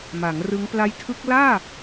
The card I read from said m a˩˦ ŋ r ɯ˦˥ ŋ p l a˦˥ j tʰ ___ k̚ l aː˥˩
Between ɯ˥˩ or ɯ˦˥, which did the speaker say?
ɯ˦˥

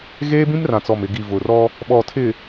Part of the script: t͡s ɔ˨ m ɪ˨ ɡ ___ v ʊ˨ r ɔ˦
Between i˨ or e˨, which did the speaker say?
i˨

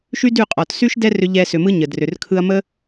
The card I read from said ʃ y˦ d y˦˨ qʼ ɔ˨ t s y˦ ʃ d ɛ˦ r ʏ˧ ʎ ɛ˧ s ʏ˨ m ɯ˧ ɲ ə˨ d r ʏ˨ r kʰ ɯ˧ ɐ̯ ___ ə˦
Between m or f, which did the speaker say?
m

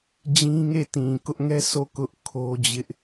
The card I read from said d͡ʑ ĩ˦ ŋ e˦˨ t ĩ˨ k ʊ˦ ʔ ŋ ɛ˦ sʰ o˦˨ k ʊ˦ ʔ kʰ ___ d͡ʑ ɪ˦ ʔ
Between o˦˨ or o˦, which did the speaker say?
o˦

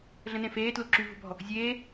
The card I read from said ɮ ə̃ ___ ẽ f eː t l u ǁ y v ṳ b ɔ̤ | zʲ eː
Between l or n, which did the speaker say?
n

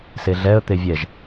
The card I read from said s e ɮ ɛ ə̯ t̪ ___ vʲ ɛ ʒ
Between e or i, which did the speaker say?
e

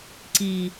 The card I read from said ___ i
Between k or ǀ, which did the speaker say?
ǀ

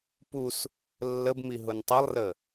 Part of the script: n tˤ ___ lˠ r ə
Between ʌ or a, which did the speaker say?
ʌ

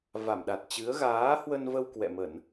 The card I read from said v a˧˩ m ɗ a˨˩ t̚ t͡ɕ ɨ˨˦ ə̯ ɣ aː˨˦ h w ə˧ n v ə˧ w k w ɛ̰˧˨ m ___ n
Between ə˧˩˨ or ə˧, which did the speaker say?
ə˧˩˨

